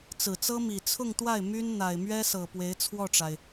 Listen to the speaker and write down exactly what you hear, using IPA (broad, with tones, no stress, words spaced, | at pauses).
t͡sɹ̩˨˩t͡sɤ˥mi˨˩ t͡sʰʊ˥˧ŋt̪wa˥˩ɪ̯ my˥nn̪a˨˩ɪ̯ mɥɛ˥sɤ˨˩ pwe˧˥ɪ̯t͡sʰwɔ˥˩ʈ͡ʂa˩ɪ̯